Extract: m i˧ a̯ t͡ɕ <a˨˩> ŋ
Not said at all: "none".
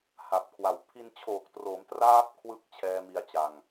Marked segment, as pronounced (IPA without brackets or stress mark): a˨˩